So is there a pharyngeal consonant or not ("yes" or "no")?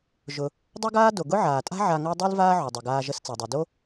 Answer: yes